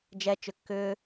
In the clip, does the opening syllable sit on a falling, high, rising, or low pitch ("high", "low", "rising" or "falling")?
high